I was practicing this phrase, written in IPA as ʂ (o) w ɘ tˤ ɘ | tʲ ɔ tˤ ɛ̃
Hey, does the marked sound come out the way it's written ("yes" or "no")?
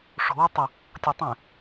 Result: no